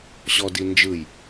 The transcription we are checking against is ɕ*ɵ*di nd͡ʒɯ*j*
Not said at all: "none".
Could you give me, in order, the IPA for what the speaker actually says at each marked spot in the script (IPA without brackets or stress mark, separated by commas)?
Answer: ɔ, j